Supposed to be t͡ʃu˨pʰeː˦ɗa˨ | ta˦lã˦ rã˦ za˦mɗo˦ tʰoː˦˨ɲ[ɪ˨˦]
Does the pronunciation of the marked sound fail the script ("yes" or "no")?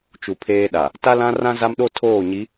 yes